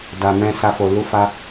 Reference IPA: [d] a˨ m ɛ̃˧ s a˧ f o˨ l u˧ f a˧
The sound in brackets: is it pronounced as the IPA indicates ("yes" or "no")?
yes